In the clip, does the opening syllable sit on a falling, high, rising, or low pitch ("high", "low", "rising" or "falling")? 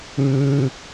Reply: high